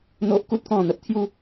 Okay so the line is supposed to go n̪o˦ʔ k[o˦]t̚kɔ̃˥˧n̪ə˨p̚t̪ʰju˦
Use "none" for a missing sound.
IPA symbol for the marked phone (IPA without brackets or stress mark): u˦